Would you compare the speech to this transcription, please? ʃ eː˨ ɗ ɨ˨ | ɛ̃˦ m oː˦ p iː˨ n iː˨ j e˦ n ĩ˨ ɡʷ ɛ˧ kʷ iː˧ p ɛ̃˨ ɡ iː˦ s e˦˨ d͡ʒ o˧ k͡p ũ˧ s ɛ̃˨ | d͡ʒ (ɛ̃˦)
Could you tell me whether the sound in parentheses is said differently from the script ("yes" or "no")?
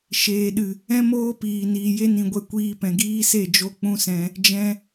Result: yes